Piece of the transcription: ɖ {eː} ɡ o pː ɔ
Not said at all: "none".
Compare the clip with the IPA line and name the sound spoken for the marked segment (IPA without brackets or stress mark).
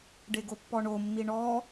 e